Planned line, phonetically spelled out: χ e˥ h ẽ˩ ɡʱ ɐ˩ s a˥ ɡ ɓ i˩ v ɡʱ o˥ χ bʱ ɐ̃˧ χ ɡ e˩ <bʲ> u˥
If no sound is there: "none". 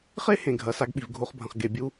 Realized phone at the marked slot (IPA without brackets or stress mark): bʲ